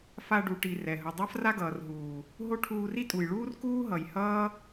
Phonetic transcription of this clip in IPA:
f a˧ ɖ u˨ ʈ i˨ r ɛ˨ ɦ ɯ˨ dˤ a˦ f r a˦ ɡ ʌː˨ r ɦ uː˨ | ɦ o˦ ʈʰ uː˧ r i˦ tʼ u˨ j ɭ uː˦ r k uː˦ ɦ ʌ˨ j h ʌː˦

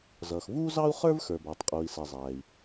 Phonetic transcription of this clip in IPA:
z ʌː˩ x v uː˥ z ɑ˥ u̯ χ ə˞˥ v x ə˞˩ b æ˩ tˤ qʼ uː˩ i̯ s ɛ˩ zˤ æː˩ i̯

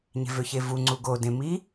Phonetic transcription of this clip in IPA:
ɲ e̤ v ø ç e v u ŋ͡ǀ u ɡ o d ẽ m i

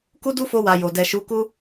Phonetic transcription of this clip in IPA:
k u˦ d u˦ f o˧ w a˨ j o˨ d ɛ˨ ʃ u˨˦ k u˦

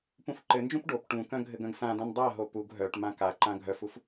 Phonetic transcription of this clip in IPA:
p ũ f ǃ ɘ n d͡ʒ ũ p ɖ o p ʈ ũ k œ̃ ɡʱ ɘ ɡ œ̃ ɡ s ã d ã n dˤ a ɦ o p u ɡ ɦ œ ʈ m ã k a ǃ ã ɡʱ œ f u f

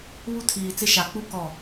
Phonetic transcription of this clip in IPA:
β u˦ tʰ iː˨ t͡s ɪ˦ ʃ a˨ k͡p u˦ k ɔ˦˨

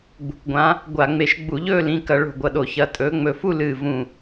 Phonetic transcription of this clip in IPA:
ɡ͡b ṳ˩˧˩ k ɡʷ ã˨˦ | ɡʷ a˧˩˧ ŋ͡m e˧˩ ʃ ɡ͡b u˧˩˧ ʎ ɵː˥˧ l ĩ˩˧˩ k ɐ˧˩˧ ɭ o̤˧˩ ɡʷ ɐ˧˩ ɗ o˧˩˧ ç ɐ˩˧˩ tʼ ɵː˨˦ ŋ͡m ɵ˧˩ f u˥˧ l ɨː˧˩ v ũ˧˩

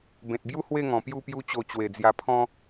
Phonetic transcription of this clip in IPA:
b ẽ˨ t̚ b j u˦ h w e˥˧ ŋ ɔ̃˨˩ p j u˥˧ p j u˦ t͡ɕ o˧ t͡ɕ w e˨˩ d͡z j a˧ pʰ ɔ̃˦

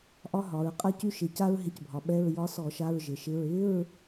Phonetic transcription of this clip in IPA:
ʔ ɒ˥ ɦ ɒ˩˧ ɹ qʼ a˥ c y˥ ʃ ɪ˧˩˧ c a˥ ɹ ɦ ɪ˧˥ c bʱ ɒ˩˧ ɓ ɛ˧˥˧ ɹ j ɒ˧˥ s ɔ˧˩˧ ʃ a˧˥˧ ɹ ʒ ɪ˩˧ ʃ ɪ˧˥˧ ɹ ɪ˧˥˧ ɹ

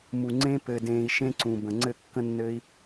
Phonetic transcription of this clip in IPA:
m u˨ ŋ͡ǀ ẽ˧ p ɘ˧ d ẽː˧ i̯ ʃ ẽ˦ ǀ ũ˨ b ə̃˨ ŋ͡ǀ ɘ˦˨ kː ə̃˦ nː ɘː˦ i̯

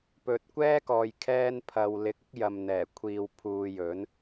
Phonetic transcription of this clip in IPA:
p ɵ˨ t̚ kʷ ɛː˥ k ɔː˨ j kʰ ɛː˥ n pʰ ɐ˧ w l ɪ˧ k̚ ɪ˥ k̚ j ɐ˨ m n̪ ɛː˨˩ kʷʰ iː˨ w pʰ uː˧ j ɵ˨˥ n

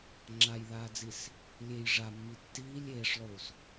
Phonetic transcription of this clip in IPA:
ŋ͡ǁ a j ð aː d͡z i s | lʲ e j ʐ a mː i tː iː lʲ eː ʂ lˠ uː s

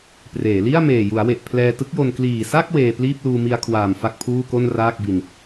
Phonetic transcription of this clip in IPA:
p r eː˩˦ l i˥˩ a̯ m eː˨˩ j u˩˦ a̯ w e˨˩ ʔ pʰ l ɛː˧ t ɯ˦˥ k̚ j o˧ n k l iː˨˩ s a˥˩ k̚ w eː˧ p l iː˥˩ p̚ l uː˧ m i˧ a̯ kʰ w aː˨˩ m f a˥˩ k̚ pʰ uː˥˩ k o˥˩ n r aː˥˩ k̚ b i˧ n

